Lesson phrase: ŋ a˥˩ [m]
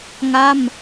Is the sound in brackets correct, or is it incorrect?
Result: correct